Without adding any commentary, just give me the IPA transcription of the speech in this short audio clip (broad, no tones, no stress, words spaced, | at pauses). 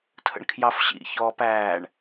tʰə̰ɳkʰjɑfɕḭ çɔːpæːɳ